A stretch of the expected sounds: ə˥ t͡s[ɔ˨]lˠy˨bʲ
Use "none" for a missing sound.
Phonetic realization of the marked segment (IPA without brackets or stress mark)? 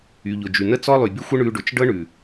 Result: ɔ˥